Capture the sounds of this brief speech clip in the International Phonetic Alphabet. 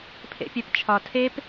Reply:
pʰ ḛ pʲ æ p t͡ʃʰ ɒ tʰ e p

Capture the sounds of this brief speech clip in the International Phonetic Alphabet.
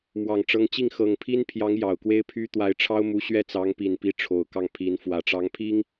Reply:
m w ɑ˨˩ ŋ ʈ͡ʂ ɤ˧˥ ŋ t͡ɕ i˥˩ ŋ x ɤ˨˩ ŋ pʰ i˥ n pʰ j ɑ˧˥ ŋ j ɑ˨˩ ʊ̯ k w e˥ ɪ̯ pʰ y˥ t̪ w a˧˥ ɪ̯ ʈ͡ʂʰ ɑ˥ ʊ̯ m u˧˥ ɕ ɥ ɛ˥˩ t͡s ɑ˧˥ ŋ p i˨˩ n p i˧˥ ʈ͡ʂʰ o˨˩ ʊ̯ k ɑ˥˩ ŋ pʰ i˧˥ n f w ä˨˩ ʈ͡ʂ ɑ˧˥ ŋ pʰ i˥ ŋ

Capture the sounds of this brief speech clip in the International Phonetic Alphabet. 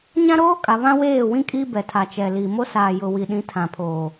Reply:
ɲ ã˦ ɾ oː˦ kʼ a˨ β ã˦ w eː˦˨ w ĩ˦ kʼ i˦ b ɛ˨ tʰ a˨ t͡ʃ ɛ˨ l i˨ m o˦ s aː˨ j ʊ˨ w i˨ ɗ ĩ˨˦ tʰ ã˨ pʰ oː˨

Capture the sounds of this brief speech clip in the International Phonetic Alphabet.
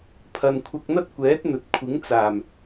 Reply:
pʰ ɐ˧ n kʷʰ ɐ˧ k̚ n̪ ɐ˥ t̚ kʷ ɛː˨˥ t̚ n̪ ɵ˨ t̚ kʷʰ ɪ˨˥ ŋ t͡s aː˨˩ m

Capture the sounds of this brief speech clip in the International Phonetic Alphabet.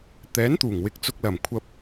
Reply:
t̪ ɛː˨˥ n t̪ uː˨˩ ŋ w ɪ˨ k̚ t͡s ʊ˧ k̚ l ɐ˨˩ m kʷʰ ɐ˧ p̚

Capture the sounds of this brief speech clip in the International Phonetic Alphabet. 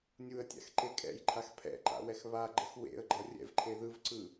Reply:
nʲ u ə̯ tʲ a̰ x ǃ e kʼ ɛ̰ j ǃʰ a x pʰ ɛ̰ ǃ a̰ w ɛ x β a ɡ͡ǃ ʌ x w ḛ ə̯ ɡ͡ǃ ʌ rʲ ɛ̰ v ǃʰ e ð ɯ v ǀ ɯ

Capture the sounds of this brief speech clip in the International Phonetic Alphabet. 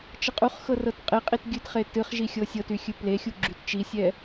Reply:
t͡ʃ ə qʼ u χ x ɤ r ɤ t qʼ e qʼ i t ɡʲ ɨ t χ e t ɨ χ ʒ i xʲ ɤ sʲ ɤ t y xʲ ɨ p l e xʲ u ɡ͡ǁ y t t͡ʃ i sʲ ɛ

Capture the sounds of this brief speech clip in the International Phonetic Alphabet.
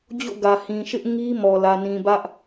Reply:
d͡ʑ o̰˦˨ ɡ ä˨ h ĩ˨ ʃ ɪ˦ ʔ ŋ i˦ m ɔ˨ l ä˨ n ĩ˨ b ä˦ ʔ

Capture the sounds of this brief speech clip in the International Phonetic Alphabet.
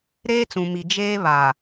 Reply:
ɾ eː˦ t͡s ũ˨ m i˨ d͡ʒ eː˦ β a˨

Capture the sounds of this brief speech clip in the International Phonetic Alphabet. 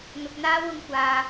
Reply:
n̪ ʊ˨ k̚ n̪ aː˧ w ʊ˨ ŋ kʷ aː˨

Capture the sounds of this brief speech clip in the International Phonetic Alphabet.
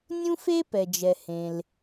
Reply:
nʲ ũ˥ f e˥ p ɛ˩ d͡ʒ ɛ˩ h ẽ˩ l

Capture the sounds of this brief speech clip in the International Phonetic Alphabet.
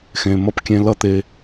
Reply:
x ẽ˨ m ʌ˧ p kʲ ẽ˧ l ʌ˦ t̪ e˧

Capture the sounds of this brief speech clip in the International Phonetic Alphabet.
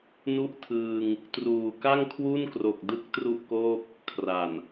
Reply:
n u˥˩ ʔ tʰ ɯː˧ ŋ | t r uː˨˩ k a˥˩ ŋ kʰ w u˥˩ n k r o˨˩ k̚ d ɯ˦˥ k̚ t r u˥˩ ʔ k oː˥˩ p̚ | kʰ r a˨˩ n

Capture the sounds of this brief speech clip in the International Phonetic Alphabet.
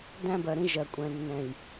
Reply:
d æ̃˦ b ɜ˨ ɾ ĩ˦ ʒ ɜ˨ kʷʼ ɛ̃˨ nː ɛ̃˨ j

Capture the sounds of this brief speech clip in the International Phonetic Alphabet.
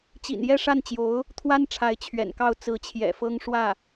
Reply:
t͡ɕ ḭ˨˩ n j ɛ˥˧ ʂ a˥˩ n t͡ɕ j o˧˥ ʊ̯ | t̪ʰ w a˥ n ʈ͡ʂʰ a˧˥ ɪ̯ t͡ɕʰ ɥ ɛ̰˨˩ n k ɑ˥˩ ʊ̯ t͡s ɹ̩˧˥ t͡ɕʰ j ɛ̰˨˩ f ɤ˥ ŋ ʂ w ä˥˩

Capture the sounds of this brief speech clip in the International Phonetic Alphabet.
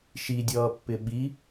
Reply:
ʃ i dʲ ʌː pː ɪ ɓ i

